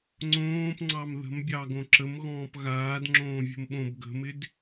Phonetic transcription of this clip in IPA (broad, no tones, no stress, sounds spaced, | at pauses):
ŋ͡ǀ õː p ŋ͡ǀ ɑ m ð ə̤ m bʲ ɑ ɡ õ ǁ ə m ɣ ɔ̃ː p ɣ aː d ŋ͡ǁ õː vʲ ə̤ m ɓ õ b ɡ ə̤ m ɪ d